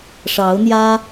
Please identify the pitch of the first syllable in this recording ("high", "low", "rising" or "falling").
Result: rising